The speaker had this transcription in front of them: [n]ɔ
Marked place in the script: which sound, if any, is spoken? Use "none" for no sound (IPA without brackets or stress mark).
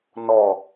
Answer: n